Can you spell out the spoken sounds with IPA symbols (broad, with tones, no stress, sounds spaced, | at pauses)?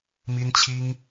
m i˦ n t͡ɕʰ i˦ ŋ